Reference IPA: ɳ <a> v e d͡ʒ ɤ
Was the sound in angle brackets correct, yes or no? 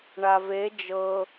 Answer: yes